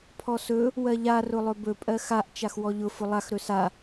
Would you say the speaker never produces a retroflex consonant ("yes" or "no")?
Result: yes